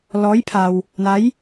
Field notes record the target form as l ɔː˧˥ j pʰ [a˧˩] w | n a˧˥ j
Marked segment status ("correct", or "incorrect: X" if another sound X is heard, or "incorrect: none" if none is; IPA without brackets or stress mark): incorrect: a˧